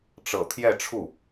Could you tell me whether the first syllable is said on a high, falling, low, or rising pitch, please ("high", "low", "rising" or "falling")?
low